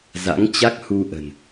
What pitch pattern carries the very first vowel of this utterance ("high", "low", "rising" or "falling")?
rising